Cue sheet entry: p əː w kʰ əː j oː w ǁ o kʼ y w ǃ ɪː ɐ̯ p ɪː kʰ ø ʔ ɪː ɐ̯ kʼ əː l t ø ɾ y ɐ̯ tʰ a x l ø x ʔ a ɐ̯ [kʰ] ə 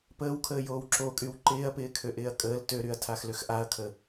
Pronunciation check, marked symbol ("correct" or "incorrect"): correct